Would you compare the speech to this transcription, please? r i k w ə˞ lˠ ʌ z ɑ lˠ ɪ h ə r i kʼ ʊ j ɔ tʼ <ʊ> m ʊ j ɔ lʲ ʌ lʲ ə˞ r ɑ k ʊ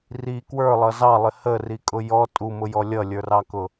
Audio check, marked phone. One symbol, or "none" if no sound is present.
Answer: u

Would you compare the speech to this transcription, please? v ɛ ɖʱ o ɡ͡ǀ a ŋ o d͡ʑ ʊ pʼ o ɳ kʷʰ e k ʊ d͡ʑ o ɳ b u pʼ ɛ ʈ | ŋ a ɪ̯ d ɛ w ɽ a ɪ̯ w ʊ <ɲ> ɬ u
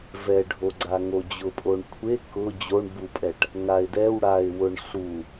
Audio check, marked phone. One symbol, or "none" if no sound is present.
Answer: ɳ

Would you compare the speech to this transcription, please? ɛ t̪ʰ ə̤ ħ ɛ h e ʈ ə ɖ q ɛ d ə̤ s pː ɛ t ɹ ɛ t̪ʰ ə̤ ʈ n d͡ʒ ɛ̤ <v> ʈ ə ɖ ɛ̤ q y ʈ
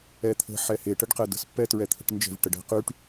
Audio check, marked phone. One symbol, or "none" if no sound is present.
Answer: v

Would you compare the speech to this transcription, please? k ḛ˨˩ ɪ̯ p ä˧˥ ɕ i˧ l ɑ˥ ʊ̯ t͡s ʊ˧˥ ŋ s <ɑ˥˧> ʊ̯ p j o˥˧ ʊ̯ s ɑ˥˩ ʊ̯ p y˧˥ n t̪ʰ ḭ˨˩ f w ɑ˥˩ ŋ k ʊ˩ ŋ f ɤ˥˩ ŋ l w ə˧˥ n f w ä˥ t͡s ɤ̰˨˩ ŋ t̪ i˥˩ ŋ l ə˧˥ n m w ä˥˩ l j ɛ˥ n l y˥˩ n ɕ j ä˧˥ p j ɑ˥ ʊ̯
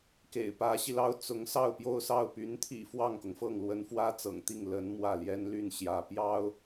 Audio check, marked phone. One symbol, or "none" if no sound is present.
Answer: ɑ˥˧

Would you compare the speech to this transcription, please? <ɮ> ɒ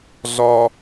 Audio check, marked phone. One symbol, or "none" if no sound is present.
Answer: ɮ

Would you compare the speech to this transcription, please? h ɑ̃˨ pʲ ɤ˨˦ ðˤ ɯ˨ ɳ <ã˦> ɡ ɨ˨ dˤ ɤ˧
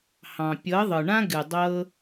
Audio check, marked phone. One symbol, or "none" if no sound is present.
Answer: ã˦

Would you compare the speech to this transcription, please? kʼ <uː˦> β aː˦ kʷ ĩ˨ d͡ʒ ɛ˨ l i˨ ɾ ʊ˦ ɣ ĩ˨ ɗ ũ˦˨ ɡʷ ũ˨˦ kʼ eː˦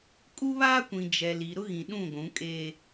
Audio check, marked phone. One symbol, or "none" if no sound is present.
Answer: u˦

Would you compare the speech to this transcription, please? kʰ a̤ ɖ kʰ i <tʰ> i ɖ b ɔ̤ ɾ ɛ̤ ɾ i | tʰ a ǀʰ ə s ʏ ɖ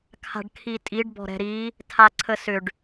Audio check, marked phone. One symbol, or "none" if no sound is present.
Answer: tʼ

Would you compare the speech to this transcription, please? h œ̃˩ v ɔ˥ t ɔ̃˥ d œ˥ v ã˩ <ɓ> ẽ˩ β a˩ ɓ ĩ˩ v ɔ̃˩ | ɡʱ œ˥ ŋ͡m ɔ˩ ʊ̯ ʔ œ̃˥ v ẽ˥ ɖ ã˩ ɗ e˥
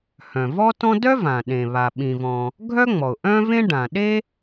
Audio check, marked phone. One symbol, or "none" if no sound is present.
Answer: ɗ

